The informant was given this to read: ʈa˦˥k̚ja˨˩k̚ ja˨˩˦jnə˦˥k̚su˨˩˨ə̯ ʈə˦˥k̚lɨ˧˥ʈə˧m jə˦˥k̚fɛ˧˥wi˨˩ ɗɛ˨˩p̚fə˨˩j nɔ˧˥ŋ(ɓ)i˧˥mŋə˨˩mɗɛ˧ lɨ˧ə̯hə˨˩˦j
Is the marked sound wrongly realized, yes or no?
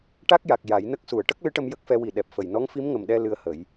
yes